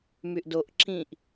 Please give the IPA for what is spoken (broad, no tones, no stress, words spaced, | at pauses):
myʔdoʔ ǁĩʔ